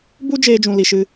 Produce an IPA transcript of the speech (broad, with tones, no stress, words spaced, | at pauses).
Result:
bu˦ d͡ʒeː˦d͡ʒũ˧ li˧ʃɨ˦